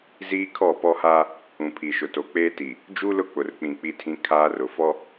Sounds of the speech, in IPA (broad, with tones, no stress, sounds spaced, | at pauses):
z iː˦ kʰ ɔ˦˨ p ɔ˦ h aː˦ | ũ˨ pʰ i˨ ʃ ʊ˨ t o˨ k͡p eː˦ t i˨ | d͡ʒ u˦ l ʊ˦ k͡p ʊ˨ r k͡p ĩ˨ k͡p i˦ tʰ ĩ˦ kʰ aː˦ r ʊ˨ f ɔ˦